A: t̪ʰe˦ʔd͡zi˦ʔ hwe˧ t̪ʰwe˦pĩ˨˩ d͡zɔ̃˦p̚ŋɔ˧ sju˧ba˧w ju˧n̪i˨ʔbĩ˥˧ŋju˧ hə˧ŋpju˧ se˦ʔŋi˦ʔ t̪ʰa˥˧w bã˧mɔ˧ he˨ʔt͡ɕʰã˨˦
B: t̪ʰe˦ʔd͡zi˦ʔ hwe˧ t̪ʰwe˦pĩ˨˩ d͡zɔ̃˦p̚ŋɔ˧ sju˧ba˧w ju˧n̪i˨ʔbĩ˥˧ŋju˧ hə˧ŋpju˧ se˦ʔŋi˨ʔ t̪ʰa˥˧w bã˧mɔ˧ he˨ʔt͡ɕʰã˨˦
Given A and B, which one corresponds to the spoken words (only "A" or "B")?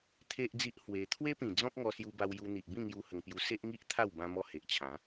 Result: A